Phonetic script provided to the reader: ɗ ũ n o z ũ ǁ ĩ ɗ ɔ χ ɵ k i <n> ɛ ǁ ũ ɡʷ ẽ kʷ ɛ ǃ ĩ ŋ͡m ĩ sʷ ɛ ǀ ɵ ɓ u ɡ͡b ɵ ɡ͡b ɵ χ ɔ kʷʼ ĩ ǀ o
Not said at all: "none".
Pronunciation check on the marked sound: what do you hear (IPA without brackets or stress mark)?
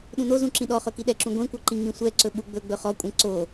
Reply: ɗ